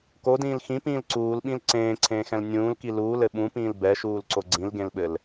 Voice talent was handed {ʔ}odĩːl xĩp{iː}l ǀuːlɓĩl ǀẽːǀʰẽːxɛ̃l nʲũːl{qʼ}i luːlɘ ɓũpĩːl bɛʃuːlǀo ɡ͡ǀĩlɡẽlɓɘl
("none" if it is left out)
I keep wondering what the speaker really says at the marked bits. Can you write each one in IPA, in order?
k, ĩː, k

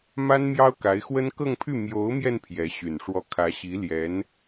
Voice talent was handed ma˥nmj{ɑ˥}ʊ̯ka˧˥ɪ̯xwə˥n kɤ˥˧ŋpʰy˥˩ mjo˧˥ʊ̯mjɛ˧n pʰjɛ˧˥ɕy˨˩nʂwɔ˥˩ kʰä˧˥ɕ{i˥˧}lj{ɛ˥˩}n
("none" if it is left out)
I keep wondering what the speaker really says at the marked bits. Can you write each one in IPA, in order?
ɑ˥, i˧˥, ɛ˧˥

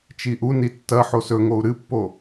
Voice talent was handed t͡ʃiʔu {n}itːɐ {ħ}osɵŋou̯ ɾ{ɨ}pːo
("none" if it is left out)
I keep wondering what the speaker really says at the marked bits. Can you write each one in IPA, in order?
n, ħ, ɨ

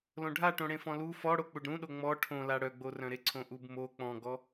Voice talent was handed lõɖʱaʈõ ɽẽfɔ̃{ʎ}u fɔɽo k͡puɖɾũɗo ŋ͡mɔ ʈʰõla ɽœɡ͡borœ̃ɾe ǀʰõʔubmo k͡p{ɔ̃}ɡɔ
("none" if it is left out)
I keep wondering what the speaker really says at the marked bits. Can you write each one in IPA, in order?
l, ɔ̃

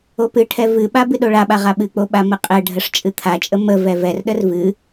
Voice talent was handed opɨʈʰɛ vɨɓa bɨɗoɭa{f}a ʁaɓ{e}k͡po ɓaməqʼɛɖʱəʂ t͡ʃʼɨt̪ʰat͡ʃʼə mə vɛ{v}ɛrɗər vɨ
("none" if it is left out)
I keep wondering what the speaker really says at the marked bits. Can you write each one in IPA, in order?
ɓ, ɨ, v

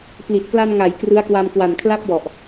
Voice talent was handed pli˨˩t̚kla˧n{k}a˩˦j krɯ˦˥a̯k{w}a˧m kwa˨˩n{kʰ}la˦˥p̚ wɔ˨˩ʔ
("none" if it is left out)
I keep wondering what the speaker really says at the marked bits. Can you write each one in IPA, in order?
ŋ, w, kʰ

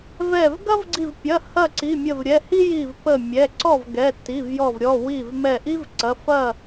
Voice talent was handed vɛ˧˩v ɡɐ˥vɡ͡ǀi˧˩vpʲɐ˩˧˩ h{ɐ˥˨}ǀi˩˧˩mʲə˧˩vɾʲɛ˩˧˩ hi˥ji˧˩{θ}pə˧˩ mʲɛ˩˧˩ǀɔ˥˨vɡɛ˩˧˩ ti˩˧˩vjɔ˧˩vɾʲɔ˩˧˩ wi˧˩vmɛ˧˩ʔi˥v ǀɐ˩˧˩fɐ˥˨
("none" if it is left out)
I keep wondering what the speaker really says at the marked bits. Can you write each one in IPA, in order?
ɐ˥˨, v

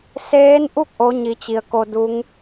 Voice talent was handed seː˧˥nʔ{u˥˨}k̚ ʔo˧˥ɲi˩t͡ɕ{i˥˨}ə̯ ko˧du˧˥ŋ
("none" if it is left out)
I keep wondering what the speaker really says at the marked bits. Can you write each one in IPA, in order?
u˥˨, i˩

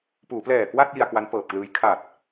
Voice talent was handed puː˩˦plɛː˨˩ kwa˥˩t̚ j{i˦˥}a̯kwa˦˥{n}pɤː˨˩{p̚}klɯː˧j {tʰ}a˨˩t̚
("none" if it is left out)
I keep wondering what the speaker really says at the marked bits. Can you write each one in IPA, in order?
i˧, n, p̚, kʰ

